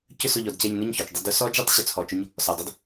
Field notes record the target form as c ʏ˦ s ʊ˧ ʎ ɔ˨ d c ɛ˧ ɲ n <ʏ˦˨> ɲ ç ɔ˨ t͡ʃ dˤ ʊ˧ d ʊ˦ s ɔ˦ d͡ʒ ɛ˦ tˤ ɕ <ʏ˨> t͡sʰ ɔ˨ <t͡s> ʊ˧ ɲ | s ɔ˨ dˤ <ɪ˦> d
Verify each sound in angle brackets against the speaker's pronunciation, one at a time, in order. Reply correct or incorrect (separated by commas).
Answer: correct, correct, incorrect, incorrect